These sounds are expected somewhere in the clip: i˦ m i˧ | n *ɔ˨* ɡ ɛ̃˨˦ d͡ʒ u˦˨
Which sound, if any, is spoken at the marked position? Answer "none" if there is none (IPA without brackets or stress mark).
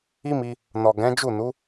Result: ɔ˨